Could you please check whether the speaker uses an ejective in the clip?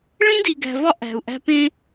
no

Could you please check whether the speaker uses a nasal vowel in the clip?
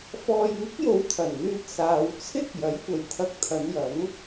no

